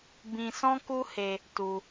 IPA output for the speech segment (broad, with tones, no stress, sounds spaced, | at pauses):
b ĩ˧ s ɔ̃˦ k u˦ h e˧ | t u˧